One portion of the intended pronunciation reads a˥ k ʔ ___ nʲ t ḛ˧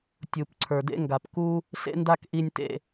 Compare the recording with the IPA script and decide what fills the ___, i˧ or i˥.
i˧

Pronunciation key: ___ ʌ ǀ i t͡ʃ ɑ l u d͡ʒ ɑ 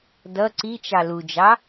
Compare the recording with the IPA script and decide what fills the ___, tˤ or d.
d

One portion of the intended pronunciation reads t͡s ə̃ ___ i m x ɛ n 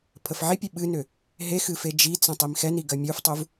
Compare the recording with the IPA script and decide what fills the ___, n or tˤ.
tˤ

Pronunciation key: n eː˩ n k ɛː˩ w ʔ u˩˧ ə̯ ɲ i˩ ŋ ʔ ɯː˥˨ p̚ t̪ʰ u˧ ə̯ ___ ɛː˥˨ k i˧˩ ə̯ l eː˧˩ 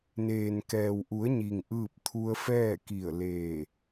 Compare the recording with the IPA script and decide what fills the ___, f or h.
f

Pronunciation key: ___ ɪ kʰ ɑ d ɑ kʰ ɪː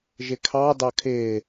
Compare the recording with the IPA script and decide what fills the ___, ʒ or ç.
ʒ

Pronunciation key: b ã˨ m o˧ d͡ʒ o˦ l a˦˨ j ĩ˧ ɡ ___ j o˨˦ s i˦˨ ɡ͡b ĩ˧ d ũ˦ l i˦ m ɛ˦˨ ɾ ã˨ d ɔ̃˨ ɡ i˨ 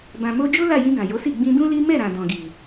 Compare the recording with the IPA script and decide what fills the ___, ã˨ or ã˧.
ã˨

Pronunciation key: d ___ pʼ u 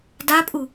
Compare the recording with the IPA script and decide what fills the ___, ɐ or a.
a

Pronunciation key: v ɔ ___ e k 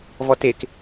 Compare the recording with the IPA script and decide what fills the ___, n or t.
t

